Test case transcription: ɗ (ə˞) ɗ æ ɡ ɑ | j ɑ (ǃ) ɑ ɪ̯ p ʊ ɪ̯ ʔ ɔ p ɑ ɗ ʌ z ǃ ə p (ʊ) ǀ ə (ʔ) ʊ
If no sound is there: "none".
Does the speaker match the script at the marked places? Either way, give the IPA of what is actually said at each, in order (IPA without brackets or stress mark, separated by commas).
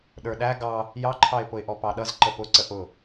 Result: ə˞, ǃʰ, ʊ, ʔ